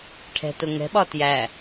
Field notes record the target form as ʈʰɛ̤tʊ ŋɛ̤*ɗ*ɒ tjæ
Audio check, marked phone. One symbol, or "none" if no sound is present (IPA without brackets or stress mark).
ɓ